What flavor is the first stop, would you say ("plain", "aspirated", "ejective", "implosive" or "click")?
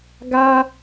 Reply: plain